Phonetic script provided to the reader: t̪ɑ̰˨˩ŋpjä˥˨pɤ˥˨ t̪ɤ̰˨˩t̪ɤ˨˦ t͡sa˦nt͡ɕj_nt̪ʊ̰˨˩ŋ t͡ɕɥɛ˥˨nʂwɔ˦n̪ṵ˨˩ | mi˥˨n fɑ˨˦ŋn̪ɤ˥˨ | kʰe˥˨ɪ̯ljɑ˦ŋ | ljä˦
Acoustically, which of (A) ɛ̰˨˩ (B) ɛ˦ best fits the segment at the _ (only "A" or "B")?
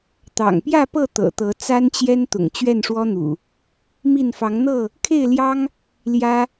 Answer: B